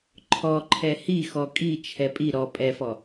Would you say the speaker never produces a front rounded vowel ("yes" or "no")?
yes